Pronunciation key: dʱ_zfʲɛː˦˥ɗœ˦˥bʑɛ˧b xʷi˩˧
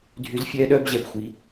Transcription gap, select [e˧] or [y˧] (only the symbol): y˧